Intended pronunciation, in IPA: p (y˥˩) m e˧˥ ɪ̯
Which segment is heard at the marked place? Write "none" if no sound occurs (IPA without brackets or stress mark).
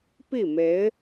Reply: i˥˩